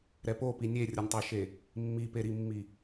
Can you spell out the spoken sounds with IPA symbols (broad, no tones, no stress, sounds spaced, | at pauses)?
ɾ ɛ p o p i nʲ e rʲ ʌ nʲ tˤ e ʃ e | mː i p e ɾ i mː i